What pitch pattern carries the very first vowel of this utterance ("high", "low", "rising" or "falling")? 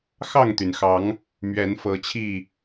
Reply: falling